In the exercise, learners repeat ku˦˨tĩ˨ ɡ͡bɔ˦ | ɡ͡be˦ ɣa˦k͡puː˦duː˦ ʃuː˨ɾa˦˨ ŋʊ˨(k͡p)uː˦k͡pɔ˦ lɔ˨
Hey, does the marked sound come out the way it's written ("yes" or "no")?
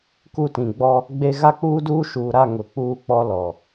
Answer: yes